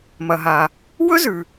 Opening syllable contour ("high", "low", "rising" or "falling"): low